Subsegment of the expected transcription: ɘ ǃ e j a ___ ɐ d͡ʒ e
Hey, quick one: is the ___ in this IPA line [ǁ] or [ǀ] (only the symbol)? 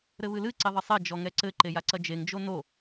ǀ